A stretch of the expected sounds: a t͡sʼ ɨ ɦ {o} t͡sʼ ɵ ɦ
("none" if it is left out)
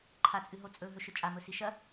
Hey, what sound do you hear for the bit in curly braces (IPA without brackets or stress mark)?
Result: o